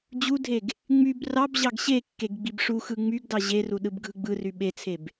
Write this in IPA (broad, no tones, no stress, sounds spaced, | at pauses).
d͡ʑ u dʱ e ɡ | ŋ͡m y b r ɑ b ʑ ɑ ɡ ɕ e kː e ɡ ɡ͡b i b ʂ u x ɯ ŋ͡m y ɡ d ɑ ʑ e r u ɗ ɯ b ɡʱ ɯ ɡ͡b ɯ r y ɓ e t͡sʰ e b